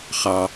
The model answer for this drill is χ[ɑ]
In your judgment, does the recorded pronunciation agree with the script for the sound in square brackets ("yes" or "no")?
yes